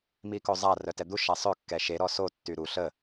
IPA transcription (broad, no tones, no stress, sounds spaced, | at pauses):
m i k o zˤ a r œ t ɛ d̪ u ʃ a sˤ ø kː ɛ ʃ e ɾ ɔ s o tː y ɾ u ɬ ə